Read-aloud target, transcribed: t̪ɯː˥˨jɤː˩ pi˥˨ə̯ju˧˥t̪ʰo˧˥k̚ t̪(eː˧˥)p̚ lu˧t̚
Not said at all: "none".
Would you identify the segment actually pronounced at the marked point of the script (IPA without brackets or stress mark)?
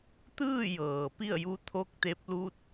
e˧˥